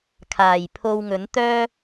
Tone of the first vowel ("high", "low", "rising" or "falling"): low